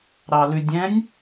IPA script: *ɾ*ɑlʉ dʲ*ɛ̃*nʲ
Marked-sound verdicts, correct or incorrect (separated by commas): correct, correct